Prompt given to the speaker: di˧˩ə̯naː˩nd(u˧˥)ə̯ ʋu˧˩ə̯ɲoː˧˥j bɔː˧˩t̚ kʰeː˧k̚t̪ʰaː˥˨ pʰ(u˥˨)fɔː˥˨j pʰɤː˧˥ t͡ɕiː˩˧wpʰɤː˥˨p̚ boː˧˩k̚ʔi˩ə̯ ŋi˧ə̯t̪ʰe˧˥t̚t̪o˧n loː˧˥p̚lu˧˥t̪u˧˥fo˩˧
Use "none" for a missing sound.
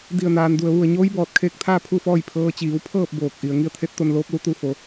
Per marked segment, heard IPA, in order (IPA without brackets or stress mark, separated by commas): u˩, u˥˨